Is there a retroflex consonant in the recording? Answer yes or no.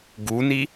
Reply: no